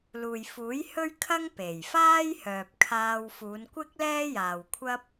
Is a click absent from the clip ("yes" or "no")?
yes